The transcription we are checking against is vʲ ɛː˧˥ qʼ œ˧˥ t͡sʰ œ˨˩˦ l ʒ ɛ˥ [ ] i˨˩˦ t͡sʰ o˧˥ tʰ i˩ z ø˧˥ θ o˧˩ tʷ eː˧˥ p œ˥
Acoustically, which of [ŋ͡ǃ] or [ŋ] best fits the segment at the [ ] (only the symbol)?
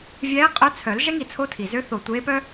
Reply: ŋ